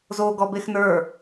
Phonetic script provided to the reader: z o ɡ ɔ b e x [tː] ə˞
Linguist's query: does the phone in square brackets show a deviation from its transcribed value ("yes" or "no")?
yes